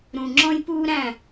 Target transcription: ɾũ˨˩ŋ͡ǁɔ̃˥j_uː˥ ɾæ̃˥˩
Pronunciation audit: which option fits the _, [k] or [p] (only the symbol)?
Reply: p